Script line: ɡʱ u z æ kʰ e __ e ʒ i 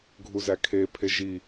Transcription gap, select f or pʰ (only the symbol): pʰ